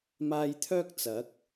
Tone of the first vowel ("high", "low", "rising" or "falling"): high